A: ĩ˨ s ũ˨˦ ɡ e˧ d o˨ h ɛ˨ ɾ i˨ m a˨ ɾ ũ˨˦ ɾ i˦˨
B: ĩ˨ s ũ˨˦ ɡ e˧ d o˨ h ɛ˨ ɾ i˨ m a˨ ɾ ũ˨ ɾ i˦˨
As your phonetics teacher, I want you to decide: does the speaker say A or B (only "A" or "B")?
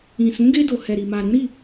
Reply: A